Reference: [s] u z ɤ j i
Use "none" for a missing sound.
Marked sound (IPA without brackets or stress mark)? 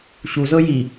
ɕ